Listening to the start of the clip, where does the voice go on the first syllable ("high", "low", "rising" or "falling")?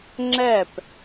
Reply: falling